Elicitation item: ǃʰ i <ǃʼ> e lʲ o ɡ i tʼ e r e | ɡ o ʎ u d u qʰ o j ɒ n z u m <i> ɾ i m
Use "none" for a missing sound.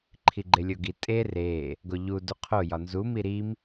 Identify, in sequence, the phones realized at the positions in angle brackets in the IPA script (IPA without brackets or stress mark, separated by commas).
ɡ͡ǃ, i